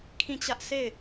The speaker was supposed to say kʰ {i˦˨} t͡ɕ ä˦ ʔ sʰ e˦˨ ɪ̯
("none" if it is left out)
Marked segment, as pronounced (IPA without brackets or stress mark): ĩ˦˨